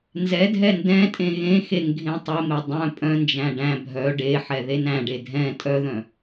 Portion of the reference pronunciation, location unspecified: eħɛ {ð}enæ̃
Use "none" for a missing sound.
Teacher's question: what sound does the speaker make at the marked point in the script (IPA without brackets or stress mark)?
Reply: ð